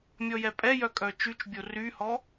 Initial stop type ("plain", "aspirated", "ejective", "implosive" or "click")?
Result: ejective